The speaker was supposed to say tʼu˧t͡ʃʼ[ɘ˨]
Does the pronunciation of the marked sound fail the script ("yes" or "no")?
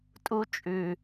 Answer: yes